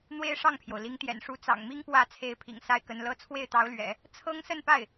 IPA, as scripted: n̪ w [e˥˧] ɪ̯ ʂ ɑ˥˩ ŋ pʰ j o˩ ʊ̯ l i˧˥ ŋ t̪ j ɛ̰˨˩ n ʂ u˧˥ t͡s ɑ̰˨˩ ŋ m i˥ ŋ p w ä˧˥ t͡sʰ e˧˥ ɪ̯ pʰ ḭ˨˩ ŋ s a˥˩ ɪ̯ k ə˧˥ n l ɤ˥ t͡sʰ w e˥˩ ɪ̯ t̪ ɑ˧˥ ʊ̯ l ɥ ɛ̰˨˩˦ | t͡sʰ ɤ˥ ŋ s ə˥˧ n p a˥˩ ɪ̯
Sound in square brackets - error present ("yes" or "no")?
yes